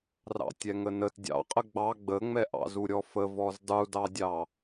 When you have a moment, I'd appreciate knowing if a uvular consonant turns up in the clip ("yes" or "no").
yes